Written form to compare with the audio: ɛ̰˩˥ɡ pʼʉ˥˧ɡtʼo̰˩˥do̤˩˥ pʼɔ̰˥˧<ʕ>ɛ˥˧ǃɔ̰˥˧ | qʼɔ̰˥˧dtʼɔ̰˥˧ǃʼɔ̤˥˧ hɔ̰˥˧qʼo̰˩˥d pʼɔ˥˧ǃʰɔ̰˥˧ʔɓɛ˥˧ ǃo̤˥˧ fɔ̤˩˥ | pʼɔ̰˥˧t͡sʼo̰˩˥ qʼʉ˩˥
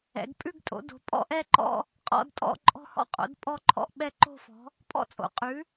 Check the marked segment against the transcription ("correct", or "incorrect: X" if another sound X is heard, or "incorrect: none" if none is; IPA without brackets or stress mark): incorrect: ʔ